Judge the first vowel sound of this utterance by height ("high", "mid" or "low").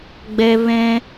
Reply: mid